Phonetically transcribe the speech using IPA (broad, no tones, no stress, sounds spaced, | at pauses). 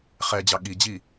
χ ɛ d͡ʑ ɑ ɠ i d͡ʑ i